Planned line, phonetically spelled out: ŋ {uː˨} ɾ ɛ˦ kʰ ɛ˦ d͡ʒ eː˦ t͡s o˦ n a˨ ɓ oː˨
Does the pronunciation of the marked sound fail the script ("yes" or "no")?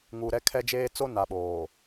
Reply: no